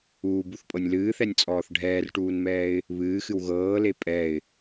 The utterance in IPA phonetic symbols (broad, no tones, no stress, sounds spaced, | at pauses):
uː b u θ pʼ ɤ nʲ l ɨː θ ɛ nʲ t͡sʼ ɔː θ ɖʱ ɛː r ʈ uː n m ɛː ɪ̯ | β ɨː x ɨ w ɣ ɤː l e pʼ ɛ ɪ̯